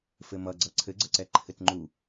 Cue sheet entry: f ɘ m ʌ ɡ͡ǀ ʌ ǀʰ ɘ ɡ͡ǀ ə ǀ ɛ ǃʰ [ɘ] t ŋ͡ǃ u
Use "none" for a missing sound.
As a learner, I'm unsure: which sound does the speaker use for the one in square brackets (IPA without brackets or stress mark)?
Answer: ɘ